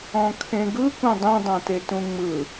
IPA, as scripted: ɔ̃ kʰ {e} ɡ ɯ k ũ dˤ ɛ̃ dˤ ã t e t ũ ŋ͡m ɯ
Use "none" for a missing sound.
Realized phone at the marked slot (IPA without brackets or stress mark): ẽ